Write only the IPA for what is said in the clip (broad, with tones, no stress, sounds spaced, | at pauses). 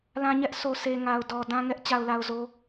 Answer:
l ã˦ ɲ ɛ˦ ʔ s o˨ s e˨ ŋ a˨ ʊ̯ d ɔ˨ d ã˦ ŋ ɛ˦ ʔ t͡ɕ a˨ ʊ̯ l a˨ ʊ̯ z o˨